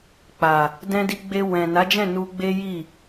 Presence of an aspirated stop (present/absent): absent